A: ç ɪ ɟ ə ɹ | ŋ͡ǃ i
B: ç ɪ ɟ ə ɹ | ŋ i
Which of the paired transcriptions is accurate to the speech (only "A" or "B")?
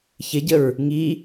B